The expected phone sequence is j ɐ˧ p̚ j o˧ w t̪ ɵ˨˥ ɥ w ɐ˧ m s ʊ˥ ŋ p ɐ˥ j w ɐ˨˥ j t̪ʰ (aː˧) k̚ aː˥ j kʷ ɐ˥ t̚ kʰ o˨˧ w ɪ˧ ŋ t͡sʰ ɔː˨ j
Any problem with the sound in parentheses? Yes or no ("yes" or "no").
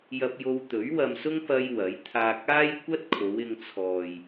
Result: no